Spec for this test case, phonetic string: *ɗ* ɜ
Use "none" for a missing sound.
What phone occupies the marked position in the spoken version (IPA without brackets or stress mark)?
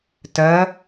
t